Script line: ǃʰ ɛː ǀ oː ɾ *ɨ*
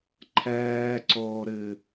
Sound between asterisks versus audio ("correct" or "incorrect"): correct